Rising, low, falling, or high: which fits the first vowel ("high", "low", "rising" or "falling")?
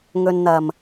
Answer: low